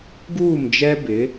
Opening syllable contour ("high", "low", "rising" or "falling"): falling